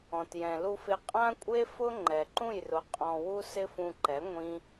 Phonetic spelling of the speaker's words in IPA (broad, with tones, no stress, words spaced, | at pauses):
ɔ̃˨tjɛ̃˨lu˧fɪ˧ qʼã˦kʷʼe˦fʊ˦ ŋ͡ǃɛ˨ǃũ˦˨jrʊ˨˦ qʼɔ̃˧wu˦ sɪ˦fũ˧ǃɛ˨˦ ŋʷĩ˦